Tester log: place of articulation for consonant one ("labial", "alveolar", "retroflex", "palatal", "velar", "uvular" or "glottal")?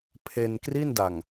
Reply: labial